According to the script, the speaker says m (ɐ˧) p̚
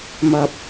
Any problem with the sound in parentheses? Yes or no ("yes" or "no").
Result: no